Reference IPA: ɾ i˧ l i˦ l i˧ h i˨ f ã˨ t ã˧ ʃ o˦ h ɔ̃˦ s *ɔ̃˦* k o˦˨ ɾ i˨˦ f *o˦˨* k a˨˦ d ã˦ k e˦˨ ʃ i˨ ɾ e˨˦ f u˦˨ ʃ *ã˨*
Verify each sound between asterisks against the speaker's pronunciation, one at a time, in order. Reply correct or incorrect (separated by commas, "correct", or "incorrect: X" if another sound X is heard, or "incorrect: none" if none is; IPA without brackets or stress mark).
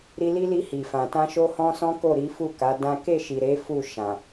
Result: correct, incorrect: u˦˨, correct